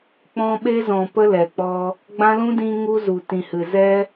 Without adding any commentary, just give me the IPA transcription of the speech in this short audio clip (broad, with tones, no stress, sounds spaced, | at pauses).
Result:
k͡p ɔ̃˧ ɓ e˧ z ɔ̃˨ p ə˧ l ɛ˨ k͡p ɔ˧ | ɡ͡b ã˦ l ũ˦ d ĩ˧ ŋ u˧ z u˨ t ĩ˨ h ɨ˨ z ɛ˧